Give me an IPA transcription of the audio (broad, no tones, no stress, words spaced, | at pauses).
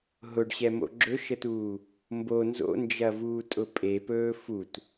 ɦʊɖɕɛmo̰ ɡ͡ǁɵʃətuː | mbo nzo̰nd͡ʒɐvuːtʼʊ pʼepɵː fut